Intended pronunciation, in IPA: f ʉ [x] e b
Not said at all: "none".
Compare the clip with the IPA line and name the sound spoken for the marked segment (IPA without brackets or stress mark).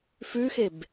x